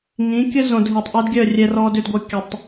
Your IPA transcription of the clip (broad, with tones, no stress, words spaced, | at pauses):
ŋĩ˨˦kʲə˦zõ˨d ɦi˨tˤʔø˦dɡʲœ˦˨ rʲɛ˨rɔ˨dʏ˨dɡʷœ˨ kʲɐ˨tˤ